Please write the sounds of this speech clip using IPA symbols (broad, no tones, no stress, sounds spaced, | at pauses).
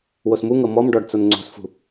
w o s m u ŋ ɤ m ɔ m ɖ ɔ ɖ t͡s o n ŋ͡ǀ o̤ s f ṳ